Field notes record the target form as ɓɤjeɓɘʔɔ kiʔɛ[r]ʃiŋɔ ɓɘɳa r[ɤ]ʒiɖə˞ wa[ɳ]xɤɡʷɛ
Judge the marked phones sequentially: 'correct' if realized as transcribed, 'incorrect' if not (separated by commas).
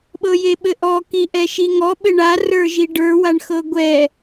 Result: incorrect, incorrect, correct